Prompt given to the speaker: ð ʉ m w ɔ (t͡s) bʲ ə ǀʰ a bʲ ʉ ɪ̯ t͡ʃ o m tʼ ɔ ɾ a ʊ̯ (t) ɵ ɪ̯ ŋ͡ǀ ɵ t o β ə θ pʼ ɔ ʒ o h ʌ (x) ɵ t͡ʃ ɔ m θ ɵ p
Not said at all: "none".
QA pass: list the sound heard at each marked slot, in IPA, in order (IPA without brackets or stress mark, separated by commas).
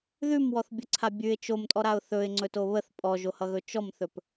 θ, θ, ɣ